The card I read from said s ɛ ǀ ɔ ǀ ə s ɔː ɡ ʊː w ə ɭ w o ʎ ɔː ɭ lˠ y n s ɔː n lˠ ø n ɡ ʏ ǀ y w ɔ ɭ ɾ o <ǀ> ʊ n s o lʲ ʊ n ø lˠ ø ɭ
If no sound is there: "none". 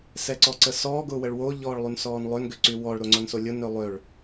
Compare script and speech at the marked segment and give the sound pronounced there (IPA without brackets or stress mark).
ŋ͡ǀ